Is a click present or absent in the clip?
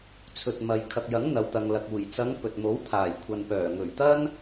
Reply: absent